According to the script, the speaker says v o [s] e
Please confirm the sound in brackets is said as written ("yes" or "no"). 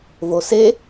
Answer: yes